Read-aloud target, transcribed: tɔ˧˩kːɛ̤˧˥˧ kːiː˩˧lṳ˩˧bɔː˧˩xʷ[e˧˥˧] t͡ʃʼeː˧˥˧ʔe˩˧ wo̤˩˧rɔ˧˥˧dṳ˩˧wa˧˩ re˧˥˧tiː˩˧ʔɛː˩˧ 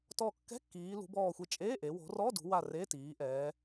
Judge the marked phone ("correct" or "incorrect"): incorrect